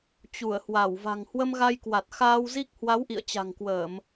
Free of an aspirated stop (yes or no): yes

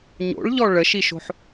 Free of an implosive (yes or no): yes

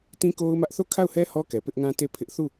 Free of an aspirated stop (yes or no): no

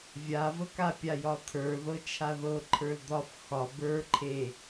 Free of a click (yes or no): no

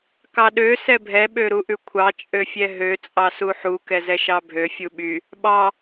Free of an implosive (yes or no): no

